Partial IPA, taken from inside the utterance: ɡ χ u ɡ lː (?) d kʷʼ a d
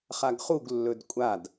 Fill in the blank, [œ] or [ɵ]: ɵ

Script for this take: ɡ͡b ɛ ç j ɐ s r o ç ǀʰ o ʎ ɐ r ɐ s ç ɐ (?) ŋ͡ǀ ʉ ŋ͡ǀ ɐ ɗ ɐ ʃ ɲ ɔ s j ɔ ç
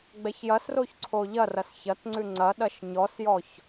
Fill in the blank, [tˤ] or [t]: t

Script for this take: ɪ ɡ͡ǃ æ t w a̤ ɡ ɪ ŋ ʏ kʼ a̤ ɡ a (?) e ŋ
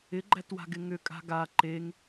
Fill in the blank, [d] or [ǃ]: ǃ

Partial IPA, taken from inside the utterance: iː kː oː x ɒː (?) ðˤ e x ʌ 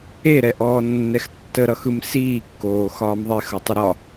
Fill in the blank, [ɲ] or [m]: m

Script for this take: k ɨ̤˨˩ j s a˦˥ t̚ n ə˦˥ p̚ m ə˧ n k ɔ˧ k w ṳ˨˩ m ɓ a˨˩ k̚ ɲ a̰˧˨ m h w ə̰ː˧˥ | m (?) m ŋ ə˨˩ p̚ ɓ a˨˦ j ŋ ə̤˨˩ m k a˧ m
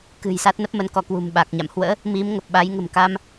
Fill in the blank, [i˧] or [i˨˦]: i˨˦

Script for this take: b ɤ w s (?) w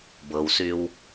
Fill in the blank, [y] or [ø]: y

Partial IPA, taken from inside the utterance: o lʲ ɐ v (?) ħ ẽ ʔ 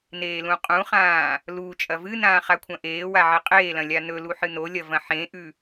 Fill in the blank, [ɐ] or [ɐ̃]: ɐ̃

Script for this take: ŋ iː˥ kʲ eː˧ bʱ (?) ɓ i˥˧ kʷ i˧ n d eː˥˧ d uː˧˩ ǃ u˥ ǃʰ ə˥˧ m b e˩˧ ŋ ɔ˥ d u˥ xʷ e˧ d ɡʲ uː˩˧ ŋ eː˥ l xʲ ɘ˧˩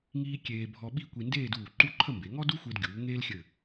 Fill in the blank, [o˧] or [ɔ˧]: ɔ˧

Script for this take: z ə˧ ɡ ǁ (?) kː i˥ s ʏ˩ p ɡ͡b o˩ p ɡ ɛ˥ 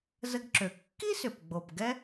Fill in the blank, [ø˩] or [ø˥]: ø˩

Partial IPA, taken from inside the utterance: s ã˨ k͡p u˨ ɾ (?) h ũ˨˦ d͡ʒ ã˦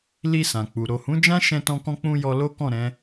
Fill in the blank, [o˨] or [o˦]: o˨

